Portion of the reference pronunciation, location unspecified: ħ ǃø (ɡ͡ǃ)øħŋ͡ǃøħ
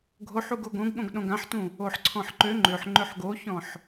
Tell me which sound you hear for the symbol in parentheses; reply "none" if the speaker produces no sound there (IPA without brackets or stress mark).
ŋ͡ǃ